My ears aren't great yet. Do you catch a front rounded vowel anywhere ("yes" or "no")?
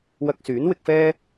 yes